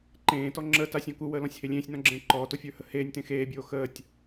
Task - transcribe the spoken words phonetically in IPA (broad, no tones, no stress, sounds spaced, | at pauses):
ǃ ẽː t ɔ ŋ͡ǁ əː t a sʲ ɔ̃ k u w əː l ɔ̃ sʲ h e lʲ ẽː sʲ n ɔ̃ ɡ͡ǁ ẽː ǃ ɔː t o fʲ ə˞ h ə h eː nʲ t ẽ x eː bʲ oː x əː tʲ